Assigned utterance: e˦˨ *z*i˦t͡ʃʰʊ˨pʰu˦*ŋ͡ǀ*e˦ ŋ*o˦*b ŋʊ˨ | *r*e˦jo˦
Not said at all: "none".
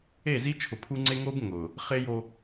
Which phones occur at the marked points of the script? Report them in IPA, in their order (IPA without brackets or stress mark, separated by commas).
z, ŋ͡ǀ, o˦, χ